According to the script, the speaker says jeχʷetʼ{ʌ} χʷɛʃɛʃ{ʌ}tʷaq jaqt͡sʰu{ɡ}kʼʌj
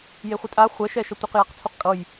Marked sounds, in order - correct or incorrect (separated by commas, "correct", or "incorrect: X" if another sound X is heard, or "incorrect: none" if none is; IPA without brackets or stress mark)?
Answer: incorrect: a, correct, incorrect: q